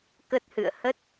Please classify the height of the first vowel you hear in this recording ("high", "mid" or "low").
mid